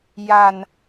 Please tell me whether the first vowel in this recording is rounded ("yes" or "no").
no